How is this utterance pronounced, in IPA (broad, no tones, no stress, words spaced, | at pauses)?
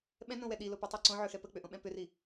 ɓɛ̃nõwɛ ɗilopʏtˤɛ ǀõʕøxɛ pək͡pʏʔõɓɛ̃ pʏri